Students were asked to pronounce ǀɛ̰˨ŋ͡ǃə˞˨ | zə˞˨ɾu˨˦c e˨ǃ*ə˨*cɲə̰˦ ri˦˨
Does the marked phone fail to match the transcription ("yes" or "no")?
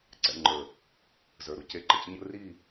no